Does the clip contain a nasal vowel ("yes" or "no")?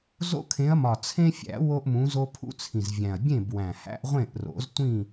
yes